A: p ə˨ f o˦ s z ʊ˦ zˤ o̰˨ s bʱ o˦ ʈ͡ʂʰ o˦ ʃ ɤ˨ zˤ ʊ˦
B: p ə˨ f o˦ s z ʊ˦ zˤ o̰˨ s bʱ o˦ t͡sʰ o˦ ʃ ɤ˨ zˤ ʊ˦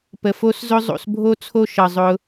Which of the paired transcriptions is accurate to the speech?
B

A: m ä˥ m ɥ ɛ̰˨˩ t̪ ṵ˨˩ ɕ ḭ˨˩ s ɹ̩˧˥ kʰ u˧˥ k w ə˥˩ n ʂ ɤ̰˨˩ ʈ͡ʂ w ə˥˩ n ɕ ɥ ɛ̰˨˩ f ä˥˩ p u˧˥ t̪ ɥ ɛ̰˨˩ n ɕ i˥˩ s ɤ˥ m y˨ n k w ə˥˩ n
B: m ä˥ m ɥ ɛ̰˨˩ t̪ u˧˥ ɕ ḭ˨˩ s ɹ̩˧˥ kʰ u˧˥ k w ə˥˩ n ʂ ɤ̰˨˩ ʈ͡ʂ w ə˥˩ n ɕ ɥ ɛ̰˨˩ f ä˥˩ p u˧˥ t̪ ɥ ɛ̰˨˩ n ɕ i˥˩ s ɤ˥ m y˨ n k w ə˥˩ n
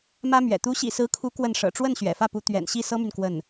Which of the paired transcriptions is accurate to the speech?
B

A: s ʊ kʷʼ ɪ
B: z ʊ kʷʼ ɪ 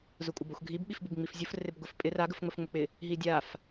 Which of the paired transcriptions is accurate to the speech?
B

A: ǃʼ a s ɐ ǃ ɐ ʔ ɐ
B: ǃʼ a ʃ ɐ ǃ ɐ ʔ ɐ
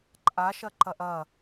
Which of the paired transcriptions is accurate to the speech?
B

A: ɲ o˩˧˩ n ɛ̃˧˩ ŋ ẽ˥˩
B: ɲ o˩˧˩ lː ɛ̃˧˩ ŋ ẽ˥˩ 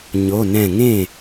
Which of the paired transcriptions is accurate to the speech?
A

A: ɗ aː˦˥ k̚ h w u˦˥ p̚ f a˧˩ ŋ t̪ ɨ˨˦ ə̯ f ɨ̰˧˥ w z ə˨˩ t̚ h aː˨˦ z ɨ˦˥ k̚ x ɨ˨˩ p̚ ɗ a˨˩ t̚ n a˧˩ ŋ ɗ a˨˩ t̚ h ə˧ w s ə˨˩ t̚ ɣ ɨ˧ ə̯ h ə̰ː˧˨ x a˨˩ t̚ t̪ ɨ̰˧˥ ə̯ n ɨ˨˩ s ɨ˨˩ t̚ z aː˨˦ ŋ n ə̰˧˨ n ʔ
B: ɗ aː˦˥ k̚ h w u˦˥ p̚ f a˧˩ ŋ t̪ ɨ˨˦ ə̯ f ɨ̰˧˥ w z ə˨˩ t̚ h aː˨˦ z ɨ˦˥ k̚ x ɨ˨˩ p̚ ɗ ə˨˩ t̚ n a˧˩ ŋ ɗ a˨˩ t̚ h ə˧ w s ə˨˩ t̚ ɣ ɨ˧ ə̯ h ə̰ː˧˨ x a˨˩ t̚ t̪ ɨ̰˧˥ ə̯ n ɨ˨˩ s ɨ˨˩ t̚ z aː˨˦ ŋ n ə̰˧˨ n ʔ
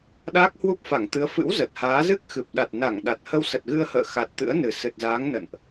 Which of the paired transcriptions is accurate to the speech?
A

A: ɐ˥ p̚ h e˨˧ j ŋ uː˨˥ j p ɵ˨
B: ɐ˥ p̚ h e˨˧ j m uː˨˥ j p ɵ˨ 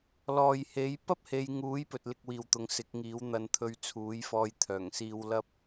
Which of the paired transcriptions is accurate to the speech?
A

